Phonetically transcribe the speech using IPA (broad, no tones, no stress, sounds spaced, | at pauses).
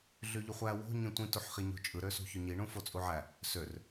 ɮ y ʎ u χʷ æ w o̤ ɲ ĩ tʷ ĩ t u ħ χ i ɲ o̤ t͡ʃʼ ɯ ɾ ø s ṳ ç ø ɲ i ɳ ũ f o t͡sʼ u ʕ æ | s ø r